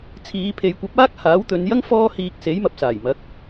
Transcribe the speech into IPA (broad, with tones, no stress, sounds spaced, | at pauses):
t͡sʰ iː˨˧ pʰ e˨˧ j kʷ ɐ˨˥ p̚ aː˥ k̚ h aː˨˥ w t̪ ɵ˨˧ n j ɐ˥ ŋ f ɔː˧ h iː˨ k̚ s e˨˥ j m ɐ˨ p̚ s aː˨˩ j m ɐ˨˥ k̚